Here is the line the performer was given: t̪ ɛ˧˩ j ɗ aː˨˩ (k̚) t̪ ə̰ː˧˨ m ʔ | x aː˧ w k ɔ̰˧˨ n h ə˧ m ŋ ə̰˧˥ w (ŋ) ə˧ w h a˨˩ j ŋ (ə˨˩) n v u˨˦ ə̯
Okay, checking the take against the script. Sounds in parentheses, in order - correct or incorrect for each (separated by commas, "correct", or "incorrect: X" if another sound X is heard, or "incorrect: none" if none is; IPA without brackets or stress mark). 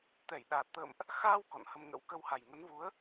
incorrect: t̚, incorrect: k, incorrect: ə˨˦